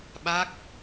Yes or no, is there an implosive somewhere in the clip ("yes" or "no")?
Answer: yes